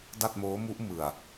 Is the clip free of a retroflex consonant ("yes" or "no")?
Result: yes